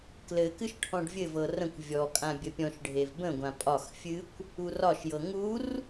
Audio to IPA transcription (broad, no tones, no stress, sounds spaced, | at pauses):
k l ɘ k ɨ ʃ ʈʰ ɔ̃ ɖ vʲ ɘ v ɤ r ə̃ kʷ vʲ ɔ kʼ ã bʲ ə pʲ ɔ̃ ʃ ɖʱ e v b ə̃ ɡʷ ã pʼ ɒ x fʲ ɨ kʷ | u r ɒ ʃ j ɤ ŋ u r